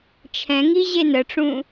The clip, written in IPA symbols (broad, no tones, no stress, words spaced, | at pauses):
t͡ʃʰɛ̃ŋiʑe nəʈ͡ʂũ